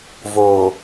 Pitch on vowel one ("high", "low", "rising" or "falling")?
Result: low